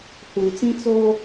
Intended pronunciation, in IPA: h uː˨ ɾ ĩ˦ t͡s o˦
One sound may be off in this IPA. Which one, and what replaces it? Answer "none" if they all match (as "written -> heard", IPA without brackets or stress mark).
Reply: ɾ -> t͡s